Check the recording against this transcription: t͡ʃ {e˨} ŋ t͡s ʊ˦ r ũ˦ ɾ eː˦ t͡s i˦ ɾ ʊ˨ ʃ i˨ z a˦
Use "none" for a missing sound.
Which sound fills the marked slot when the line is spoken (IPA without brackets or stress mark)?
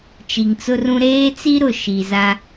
i˨